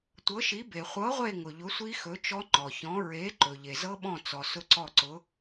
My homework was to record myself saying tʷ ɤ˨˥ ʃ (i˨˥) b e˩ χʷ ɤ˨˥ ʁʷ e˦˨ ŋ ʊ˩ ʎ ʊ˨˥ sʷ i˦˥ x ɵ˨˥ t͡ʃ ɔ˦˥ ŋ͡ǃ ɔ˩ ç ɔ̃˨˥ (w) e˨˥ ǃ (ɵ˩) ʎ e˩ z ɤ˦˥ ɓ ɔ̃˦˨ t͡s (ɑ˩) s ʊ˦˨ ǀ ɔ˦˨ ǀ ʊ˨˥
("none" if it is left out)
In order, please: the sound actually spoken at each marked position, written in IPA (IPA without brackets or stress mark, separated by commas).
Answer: i˨˥, ɹ, ɵ˩, ɔ˩